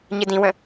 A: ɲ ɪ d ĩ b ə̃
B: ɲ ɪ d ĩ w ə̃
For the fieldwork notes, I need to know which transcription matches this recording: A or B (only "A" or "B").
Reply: B